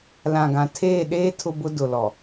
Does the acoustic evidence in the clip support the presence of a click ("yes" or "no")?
no